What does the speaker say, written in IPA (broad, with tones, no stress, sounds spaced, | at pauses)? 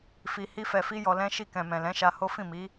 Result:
f i˧ h i˦ f ɛ˧ f i˦ j ɔ˧ l ɛ̃˦ ʃ i˧ k ɛ̃˨ m ɛ̃˨ l ɛ̃˨˦ ʃ a˧ h o˦ f ĩ˦˨ m i˨˦